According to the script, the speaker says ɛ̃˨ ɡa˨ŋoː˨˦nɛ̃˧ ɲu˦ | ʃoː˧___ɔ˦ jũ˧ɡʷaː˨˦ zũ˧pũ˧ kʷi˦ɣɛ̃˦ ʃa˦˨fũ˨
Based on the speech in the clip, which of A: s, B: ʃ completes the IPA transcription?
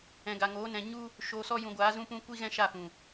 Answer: A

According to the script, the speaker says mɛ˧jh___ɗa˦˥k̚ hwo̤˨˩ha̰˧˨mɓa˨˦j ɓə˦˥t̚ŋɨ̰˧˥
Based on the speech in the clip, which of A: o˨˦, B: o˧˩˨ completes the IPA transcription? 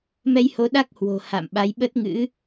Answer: A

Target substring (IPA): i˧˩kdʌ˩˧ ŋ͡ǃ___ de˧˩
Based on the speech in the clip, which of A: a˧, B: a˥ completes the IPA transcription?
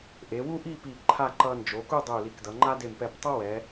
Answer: B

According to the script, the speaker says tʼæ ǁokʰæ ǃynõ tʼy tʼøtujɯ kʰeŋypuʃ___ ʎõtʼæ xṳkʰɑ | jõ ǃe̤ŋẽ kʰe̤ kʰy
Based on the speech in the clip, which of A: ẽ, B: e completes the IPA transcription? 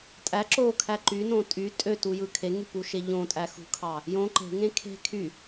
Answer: B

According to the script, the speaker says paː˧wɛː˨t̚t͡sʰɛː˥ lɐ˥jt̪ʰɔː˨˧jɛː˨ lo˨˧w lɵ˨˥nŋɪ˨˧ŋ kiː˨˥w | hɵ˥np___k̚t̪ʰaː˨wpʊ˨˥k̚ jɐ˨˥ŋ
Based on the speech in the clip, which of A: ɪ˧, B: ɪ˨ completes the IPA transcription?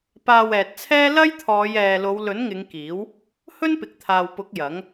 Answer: B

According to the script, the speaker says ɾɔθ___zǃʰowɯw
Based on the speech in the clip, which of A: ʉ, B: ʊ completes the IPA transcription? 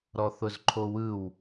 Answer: B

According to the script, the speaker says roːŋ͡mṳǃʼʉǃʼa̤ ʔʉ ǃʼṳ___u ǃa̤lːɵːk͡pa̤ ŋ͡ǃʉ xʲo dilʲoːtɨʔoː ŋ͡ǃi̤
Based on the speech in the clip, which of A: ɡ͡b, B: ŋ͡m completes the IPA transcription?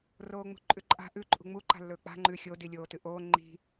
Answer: B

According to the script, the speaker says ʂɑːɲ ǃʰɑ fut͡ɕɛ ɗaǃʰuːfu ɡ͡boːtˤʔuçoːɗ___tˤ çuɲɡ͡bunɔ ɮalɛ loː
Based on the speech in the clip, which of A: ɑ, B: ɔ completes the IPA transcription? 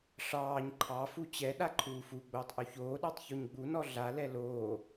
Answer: A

